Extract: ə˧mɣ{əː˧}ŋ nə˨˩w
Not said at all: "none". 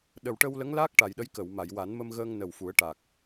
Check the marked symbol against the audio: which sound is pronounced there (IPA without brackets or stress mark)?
əː˧